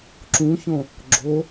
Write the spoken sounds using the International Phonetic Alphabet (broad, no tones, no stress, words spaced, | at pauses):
ǁũçõ | ɡ͡ǁo